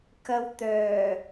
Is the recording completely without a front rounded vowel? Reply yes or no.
no